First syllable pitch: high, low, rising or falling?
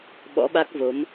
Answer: rising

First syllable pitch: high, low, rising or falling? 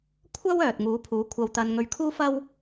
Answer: high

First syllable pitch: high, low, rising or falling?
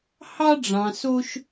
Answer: high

